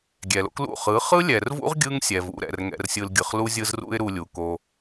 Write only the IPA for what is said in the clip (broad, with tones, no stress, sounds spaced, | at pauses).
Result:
ɡʲ ɛ˨ l o̰˦ k l ṵ˦˨ χ ɯ˨˦ χ ɯ˦ lʲ ɛ˨ r v ṵ˦ ʁ ɡʲ ɯ˦ ŋ sʲ ɛ˨ v ṵ˨˦ ɾ ɛ̰˨ r ŋ ɛ̰˧ r sʲ ɯ˧ l ɡʲ ɯ˨ χ l u˦ zʲ ɯ˦ z r ṵ˦ ɪ̯ ɾ u˧ lʲ u˨ k o˧